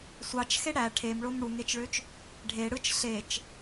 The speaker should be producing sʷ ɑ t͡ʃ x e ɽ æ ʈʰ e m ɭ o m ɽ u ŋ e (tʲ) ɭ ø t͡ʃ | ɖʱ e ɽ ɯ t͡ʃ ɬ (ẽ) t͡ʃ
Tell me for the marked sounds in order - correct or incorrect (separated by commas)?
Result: incorrect, incorrect